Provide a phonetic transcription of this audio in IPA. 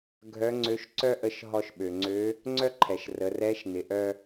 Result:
ɡʱ œ˧˥ ŋ͡ǀ ø˧˥ ʃ ǀ œ˥ ʔ ə˧˥ ʃ ɦ ɔ˧ ʃ ɓ ø˩ ŋ͡ǀ ø˧˥ | ŋ͡ǀ œ˥ ǃʰ ɛ˩ ʃ r ə˩˧ r ɛ˧˥ ʃ n ɪ˩ ʔ œ˧

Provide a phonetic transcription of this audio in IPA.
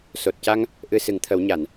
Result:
s o˨˩ t̚ c a˧ ŋ | ʔ ɨ˧ s ɨ˨˩˦ ŋ t̪ʰ ə˨˩˦ w ɲ a˨˩˨ n

